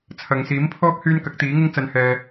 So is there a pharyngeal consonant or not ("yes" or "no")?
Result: no